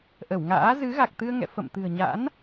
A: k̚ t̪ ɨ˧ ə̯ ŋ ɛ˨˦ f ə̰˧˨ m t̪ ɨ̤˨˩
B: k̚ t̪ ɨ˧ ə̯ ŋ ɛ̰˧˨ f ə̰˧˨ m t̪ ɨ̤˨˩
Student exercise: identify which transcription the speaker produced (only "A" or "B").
B